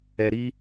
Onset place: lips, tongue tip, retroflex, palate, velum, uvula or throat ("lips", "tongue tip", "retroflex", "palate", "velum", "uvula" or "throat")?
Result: tongue tip